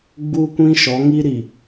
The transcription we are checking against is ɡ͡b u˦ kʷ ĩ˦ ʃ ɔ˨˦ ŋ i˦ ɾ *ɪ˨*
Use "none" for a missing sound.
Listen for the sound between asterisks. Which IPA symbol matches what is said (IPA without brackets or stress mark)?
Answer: i˨